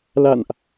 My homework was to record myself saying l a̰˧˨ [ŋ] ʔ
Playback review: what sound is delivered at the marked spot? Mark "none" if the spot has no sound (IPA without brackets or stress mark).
n